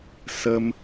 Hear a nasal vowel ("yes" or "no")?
no